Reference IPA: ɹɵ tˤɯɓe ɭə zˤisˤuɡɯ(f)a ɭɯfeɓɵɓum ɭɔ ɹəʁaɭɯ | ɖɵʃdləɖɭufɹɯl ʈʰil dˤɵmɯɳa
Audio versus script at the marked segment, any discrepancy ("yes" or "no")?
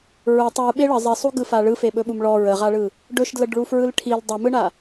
no